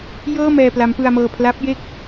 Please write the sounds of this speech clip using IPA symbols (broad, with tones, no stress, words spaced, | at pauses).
jɤː˥˩ mɛː˧pla˦˥mpɯ˧a̯mɤː˧ pʰla˦˥p̚je˥˩k̚